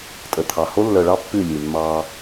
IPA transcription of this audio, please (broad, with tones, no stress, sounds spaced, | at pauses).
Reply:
tʼ ə˨ t̪ʰ ɑ˨ h o˦ lː œ˨ ɭ ɑ˦ pː ʉ˦˨ lʲ ʉ˨ mː ɑ˦